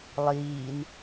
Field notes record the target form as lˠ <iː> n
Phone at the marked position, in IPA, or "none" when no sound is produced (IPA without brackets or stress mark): iː